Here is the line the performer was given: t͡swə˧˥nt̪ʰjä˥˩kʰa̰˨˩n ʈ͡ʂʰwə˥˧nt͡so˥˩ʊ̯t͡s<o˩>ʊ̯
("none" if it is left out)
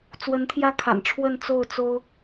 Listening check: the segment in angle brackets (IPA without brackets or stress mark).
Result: o˥